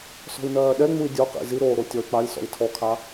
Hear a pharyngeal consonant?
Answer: no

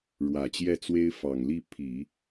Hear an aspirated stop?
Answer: yes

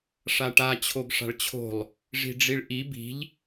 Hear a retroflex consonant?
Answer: yes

